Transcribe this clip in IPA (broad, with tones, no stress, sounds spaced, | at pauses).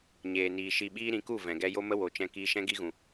ɲ eː˨ n iː˨ ʃ i˧ ɓ iː˦ ɾ ĩ˨˦ k u˦˨ v ɛ̃˨ ɡ ɛ˦ j o˦ m ə˦ w o˨ t͡ʃ ɛ̃˧ k iː˧ ʃ ɛ̃˦ ɡ i˦ ɣ ũ˨